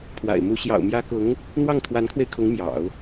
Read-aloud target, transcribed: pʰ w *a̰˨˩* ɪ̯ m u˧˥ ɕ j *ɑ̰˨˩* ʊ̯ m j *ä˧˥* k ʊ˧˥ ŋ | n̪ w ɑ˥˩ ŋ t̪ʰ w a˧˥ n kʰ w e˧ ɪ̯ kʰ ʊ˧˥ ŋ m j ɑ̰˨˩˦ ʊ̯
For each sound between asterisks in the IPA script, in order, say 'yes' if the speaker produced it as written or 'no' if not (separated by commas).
yes, yes, yes